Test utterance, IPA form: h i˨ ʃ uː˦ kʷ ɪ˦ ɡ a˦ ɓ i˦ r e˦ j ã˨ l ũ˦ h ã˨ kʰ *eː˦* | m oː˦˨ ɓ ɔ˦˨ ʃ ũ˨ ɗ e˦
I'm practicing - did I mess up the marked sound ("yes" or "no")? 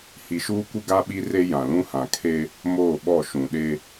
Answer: yes